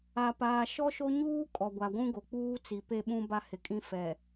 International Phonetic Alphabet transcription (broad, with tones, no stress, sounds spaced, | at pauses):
a˨ p aː˨ ʃ ɔ˦ ʃ o˦ ɲ uː˦ kʼ ɔ˨ ɡʷ a˨ ɡʷ ũ˦ ɡ o˨ k͡p uː˦ t͡s i˨ p e˦ ɓ ũ˦ b a˦ h ɪ˨ kʼ ĩ˦ f ɛ˨